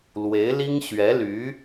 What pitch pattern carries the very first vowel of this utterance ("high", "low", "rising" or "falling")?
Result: rising